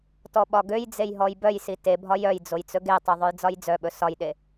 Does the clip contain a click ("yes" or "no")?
no